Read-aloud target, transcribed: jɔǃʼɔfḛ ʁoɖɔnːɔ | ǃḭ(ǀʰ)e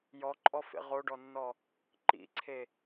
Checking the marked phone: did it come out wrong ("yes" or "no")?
no